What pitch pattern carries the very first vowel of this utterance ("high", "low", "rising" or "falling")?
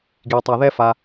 low